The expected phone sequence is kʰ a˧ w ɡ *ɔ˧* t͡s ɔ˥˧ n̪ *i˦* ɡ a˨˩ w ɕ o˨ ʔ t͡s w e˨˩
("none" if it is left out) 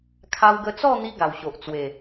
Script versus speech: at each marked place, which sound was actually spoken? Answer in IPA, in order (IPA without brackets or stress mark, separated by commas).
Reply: ə˧, i˦